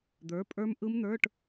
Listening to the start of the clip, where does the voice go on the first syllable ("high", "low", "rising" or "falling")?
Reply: rising